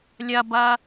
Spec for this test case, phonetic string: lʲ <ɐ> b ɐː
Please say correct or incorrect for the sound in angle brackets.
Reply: correct